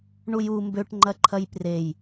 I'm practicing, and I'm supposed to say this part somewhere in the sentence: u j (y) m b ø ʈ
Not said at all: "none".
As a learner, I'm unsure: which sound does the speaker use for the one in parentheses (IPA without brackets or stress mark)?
u